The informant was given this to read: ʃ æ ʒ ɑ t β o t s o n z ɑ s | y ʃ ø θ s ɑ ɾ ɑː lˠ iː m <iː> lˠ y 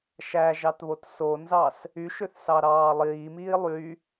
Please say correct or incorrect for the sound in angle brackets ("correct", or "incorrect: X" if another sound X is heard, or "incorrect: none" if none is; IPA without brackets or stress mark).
correct